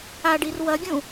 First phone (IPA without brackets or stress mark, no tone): a